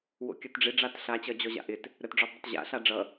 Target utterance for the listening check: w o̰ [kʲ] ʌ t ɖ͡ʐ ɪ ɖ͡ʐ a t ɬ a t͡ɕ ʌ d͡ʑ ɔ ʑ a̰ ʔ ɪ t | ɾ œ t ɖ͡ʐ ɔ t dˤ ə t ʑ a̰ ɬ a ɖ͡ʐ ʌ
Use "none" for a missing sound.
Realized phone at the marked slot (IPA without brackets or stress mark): kʲ